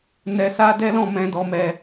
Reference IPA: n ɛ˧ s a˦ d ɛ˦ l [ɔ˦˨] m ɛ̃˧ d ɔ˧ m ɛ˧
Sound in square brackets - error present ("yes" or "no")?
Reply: yes